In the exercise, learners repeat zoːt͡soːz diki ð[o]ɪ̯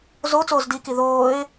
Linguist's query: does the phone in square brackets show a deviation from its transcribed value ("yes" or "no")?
yes